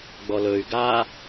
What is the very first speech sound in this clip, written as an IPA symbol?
ɡ͡b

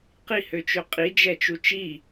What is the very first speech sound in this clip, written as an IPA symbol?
q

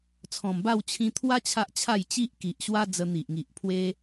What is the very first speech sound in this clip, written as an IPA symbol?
t͡sʰ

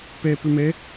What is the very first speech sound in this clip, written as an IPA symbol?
p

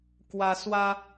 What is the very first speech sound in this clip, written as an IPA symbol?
k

